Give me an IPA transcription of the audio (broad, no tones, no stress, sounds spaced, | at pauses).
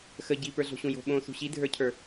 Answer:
x ə ɟ i p ə˞ ɮ o̤ ɕ ũ j o̤ ɓ õ s ṳ ɕ i dʱ ə˞ cʰ ə˞